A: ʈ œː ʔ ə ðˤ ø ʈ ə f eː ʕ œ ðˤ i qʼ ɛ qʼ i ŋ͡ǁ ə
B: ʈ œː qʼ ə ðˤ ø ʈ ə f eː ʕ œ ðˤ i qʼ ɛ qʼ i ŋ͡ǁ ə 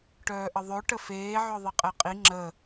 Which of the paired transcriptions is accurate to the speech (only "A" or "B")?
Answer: A